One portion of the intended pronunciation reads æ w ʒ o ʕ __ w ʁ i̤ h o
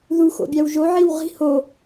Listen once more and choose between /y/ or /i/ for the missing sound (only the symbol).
i